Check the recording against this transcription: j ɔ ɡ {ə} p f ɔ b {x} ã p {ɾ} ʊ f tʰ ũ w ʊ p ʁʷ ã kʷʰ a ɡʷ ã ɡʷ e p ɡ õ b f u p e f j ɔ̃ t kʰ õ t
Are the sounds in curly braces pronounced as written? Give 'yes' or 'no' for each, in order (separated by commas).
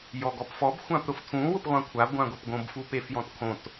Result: no, no, yes